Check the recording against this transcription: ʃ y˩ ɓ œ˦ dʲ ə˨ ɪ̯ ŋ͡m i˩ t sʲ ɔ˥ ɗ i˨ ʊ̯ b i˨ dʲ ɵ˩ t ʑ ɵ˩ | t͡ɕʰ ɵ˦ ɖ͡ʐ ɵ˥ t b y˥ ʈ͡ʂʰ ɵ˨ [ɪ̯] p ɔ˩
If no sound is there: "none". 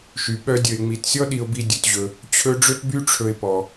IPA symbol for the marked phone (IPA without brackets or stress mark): ɪ̯